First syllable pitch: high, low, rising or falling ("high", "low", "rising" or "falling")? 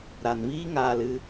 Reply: low